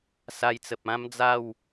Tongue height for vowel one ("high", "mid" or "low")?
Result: low